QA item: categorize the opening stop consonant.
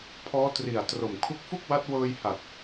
aspirated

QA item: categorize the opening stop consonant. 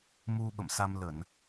implosive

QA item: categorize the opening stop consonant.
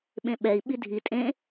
implosive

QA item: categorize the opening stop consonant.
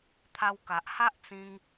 aspirated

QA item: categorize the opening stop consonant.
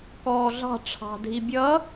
plain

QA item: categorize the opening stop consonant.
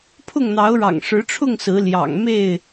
aspirated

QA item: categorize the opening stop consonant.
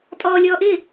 ejective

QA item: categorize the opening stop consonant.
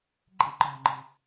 click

